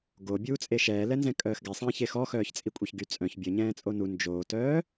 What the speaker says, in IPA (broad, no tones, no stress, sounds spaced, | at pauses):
ɡ o bʲ uː t͡sʼ e ʃ ɛː l ɛ n z ɛ̃ kʼ œː x ɡ ɛ sˤ ɛ̃ː ç e x ɔ x œː ç t͡sʼ i kʷʼ e ç ɡ y t͡sʼ œ̃ ç bʲ ə ɲ ɛ̃ː t͡sʼ o n u n d͡ʒ oː t œː